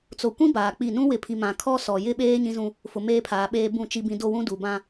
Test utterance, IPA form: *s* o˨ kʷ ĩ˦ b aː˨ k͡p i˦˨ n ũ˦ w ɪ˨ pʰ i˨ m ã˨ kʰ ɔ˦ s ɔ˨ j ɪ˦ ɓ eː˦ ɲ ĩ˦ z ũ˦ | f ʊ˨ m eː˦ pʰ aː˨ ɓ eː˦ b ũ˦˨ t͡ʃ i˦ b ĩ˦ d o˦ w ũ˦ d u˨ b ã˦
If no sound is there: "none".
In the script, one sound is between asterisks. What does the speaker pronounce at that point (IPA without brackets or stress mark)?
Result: t͡s